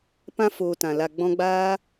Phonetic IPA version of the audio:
p ã˧ f oː˨ t ã˨ l a˨ ɡ͡b ɔ̃˧ ɡ͡b aː˦

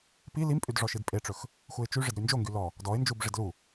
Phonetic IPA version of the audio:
p i l i m pʼ y d ʐ ɔ ʃ i d pʼ e ʈ͡ʂ ɵ x | x u ɪ̯ t͡ʃ y ʐ ɪ d ɾ y n d͡ʒ o ŋ ɡ y l ɔ | d ɔ ɪ̯ n d͡ʒ u b ʐ ɪ d l u

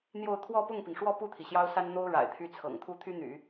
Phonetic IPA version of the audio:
n̪ j o˥˧ ʊ̯ t̪ʰ w ɔ˥˧ p ʊ˥˩ ŋ p i˩ ŋ ʂ w ɔ˥˧ p u˥˩ t̪ʰ i˩ ɕ j ɑ˥ ʊ̯ s a˥ n n̪ o˥ ʊ̯ ɻ a̰˨˩ ɪ̯ t̪ʰ y˥˩ t͡sʰ ɤ̰˨˩ ŋ t̪ʰ u˥ t̪ʰ y˥ n̪ y̰˨˩˦

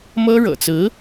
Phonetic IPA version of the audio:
m ɤ˥ ɻ ɤ̰˨˩ t͡s ɹ̩˧˥

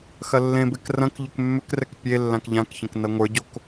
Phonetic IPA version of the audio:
x ɐ lː ẽ b e k r ɐ̃ k ʎ ʏ k mː ʏ k r ɛ k pʲ e lː ã k ʎ ã k ç ɐ̃ k n ɐ ŋʷ ə˞ ɟ o k

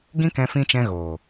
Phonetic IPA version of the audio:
ɡ ĩ˦ k ɛ̃˧ f ĩ˧ t͡ʃ ɛ̃˧ ɣ oː˨

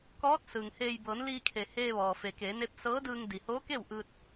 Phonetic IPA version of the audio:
k ɔː˧˥ t̚ s ɯː˩ ŋ h eː˧ j b ɤː˩˧ n l iː˧ kʰ e˩ h eː˧ ʋ ɔː˩ f e˩ k eː˩˧ n e˧˥ p̚ s ɤː˧˥ d ɯː˧ ŋ d i˩ h oː˧˥ k e˥˨ w ʔ ɯː˧ t̚

